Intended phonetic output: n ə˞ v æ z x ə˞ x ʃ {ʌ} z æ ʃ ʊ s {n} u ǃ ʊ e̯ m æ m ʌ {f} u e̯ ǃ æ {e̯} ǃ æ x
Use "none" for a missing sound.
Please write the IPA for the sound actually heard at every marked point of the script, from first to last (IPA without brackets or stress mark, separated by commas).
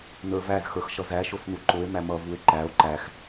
ʌ, n, v, o̯